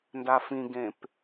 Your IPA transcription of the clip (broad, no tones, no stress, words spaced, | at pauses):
ndafĩɡẽp